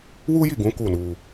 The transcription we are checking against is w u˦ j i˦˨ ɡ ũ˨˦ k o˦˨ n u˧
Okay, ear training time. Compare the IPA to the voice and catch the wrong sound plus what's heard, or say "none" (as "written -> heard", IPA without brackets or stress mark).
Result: o˦˨ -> u˦˨